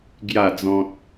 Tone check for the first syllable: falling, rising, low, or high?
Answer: falling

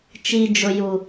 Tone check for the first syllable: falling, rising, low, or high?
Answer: low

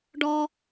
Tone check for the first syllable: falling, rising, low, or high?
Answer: high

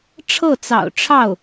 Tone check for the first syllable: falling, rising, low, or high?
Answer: falling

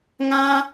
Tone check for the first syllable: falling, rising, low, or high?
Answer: high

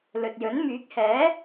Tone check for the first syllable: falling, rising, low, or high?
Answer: low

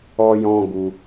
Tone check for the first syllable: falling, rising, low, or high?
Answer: high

